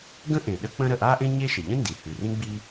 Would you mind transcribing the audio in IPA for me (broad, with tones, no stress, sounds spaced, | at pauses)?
ɡ ə̃˥ ʔ ẽ˩ ɗ ə˥ k͡p ə̃˥ ɾ ə˩ ʔ a˥ ʔ ẽ˥ ɲ e˥ ʃ ə˩ ʎ ə̃˥ n d i˩ h ʉ˩ r ĩ˥ ɡ͡b i˥